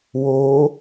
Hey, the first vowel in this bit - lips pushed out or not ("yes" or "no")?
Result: yes